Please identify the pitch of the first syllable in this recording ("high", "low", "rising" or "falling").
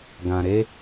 low